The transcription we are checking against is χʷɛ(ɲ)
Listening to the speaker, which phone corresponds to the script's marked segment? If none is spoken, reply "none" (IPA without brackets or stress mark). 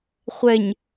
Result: ɲ